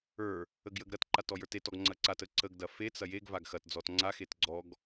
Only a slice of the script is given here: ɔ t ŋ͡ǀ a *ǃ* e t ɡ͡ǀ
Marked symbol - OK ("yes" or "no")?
no